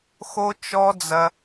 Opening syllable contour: high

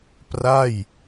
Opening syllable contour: falling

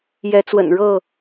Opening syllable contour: rising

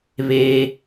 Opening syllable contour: low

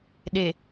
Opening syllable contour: low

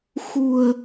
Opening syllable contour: low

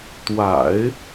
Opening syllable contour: low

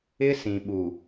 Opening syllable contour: high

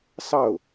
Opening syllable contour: falling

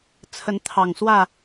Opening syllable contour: rising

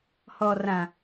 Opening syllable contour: low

